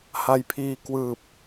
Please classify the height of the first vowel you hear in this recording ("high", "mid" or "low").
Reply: low